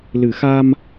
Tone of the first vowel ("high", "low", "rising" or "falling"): low